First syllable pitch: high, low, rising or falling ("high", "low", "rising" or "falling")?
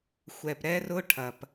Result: low